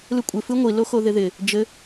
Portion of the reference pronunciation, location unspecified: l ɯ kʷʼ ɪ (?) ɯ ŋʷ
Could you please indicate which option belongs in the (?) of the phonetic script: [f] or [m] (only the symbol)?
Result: f